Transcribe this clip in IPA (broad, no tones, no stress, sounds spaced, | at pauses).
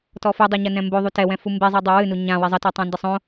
t ɔ f ɨ dˤ ɛ ɲ ɐ n ɛ̃ m b o ðˤ u t ɛ w ɛ̃ f u m b e zˤ i dˤ u w ɨ n u ɲ ã w i zˤ ɐ t ɔ tˤ ã n d ɘ sˤ õ